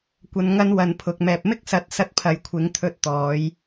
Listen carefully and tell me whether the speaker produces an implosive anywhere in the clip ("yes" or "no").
no